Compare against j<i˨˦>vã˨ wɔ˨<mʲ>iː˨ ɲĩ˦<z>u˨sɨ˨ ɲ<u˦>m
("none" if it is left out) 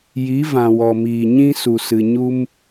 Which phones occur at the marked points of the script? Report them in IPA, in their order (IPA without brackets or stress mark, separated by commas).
i˨˦, m, s, u˦